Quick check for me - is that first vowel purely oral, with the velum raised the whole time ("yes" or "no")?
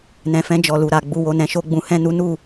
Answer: no